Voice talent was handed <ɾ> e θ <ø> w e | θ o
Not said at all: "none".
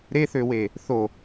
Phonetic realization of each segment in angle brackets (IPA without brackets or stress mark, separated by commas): ɾ, ø